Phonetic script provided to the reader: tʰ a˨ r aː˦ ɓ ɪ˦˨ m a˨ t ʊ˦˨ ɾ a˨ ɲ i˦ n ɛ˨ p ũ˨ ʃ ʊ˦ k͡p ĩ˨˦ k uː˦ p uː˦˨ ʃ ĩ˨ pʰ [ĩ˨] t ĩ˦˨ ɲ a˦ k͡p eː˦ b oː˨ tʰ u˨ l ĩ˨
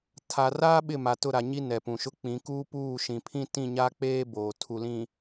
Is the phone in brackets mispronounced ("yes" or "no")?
yes